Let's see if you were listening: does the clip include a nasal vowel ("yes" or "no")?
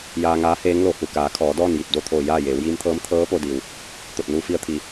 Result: no